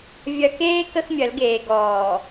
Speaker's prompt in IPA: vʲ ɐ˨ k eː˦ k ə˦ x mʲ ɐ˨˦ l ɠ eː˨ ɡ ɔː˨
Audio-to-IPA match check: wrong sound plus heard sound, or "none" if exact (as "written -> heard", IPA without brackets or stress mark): ɠ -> ɡ